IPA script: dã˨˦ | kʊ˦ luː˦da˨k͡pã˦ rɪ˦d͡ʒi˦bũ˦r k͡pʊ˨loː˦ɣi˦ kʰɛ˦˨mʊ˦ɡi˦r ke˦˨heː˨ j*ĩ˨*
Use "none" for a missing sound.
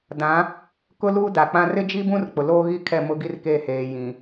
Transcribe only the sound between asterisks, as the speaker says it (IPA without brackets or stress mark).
ĩ˨